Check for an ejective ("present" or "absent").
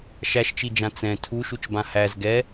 absent